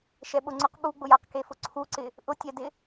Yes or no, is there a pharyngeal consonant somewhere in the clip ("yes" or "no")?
no